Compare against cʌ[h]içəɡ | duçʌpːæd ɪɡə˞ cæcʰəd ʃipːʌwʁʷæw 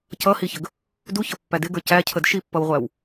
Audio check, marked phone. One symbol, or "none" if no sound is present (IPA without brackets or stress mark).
h